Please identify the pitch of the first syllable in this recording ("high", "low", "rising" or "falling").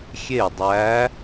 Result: falling